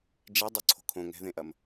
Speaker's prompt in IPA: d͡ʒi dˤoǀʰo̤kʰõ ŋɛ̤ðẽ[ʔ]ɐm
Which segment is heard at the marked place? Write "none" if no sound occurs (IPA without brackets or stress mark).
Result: ʔ